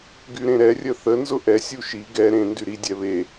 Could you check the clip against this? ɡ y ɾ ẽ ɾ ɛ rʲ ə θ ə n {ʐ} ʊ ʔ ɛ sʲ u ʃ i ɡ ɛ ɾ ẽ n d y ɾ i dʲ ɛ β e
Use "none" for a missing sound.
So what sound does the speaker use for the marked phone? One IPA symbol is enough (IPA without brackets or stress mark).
z